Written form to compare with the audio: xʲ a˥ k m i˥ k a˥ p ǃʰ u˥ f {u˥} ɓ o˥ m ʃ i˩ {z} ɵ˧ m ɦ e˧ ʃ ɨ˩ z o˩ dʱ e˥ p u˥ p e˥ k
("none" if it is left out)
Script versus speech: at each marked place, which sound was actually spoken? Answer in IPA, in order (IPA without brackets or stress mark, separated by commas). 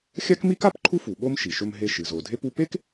u˩, ʃ